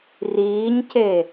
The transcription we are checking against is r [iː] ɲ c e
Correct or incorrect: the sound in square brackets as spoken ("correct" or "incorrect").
correct